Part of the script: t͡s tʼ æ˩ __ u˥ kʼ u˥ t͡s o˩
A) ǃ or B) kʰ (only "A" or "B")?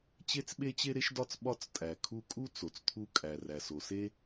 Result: B